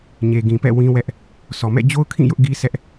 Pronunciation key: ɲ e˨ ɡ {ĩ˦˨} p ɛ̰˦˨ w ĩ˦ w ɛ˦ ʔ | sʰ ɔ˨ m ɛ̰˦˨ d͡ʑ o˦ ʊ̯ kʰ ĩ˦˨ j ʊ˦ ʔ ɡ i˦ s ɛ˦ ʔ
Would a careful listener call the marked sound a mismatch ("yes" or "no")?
yes